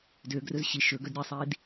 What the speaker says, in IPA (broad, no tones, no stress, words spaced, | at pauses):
døɡrɵz ɕi ʃɵɡœd ɾʲɛsˤiːd